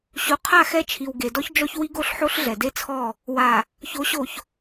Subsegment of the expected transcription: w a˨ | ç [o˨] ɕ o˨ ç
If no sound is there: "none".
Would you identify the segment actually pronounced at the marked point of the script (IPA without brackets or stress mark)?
o˨˦